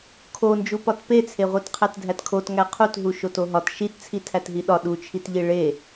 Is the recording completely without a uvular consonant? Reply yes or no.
no